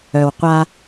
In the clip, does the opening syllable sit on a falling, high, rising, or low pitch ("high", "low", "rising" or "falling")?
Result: low